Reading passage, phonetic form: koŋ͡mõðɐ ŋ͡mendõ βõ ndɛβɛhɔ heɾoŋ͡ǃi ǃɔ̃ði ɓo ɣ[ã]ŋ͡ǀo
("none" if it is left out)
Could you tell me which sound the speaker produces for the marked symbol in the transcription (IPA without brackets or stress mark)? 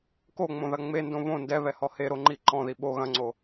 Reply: ɐ̃